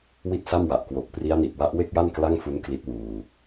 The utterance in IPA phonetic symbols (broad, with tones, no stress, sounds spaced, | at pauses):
w i˥˩ t̚ s a˥˩ m w a˨˩ ʔ k w o˨˩ k̚ p r i˦˥ a̯ n i˨˩ t̚ w a˦˥ ʔ w e˥˩ k̚ j a˥˩ n k l a˥˩ ŋ f u˦˥ n k l i˦˥ t̚ w uː˧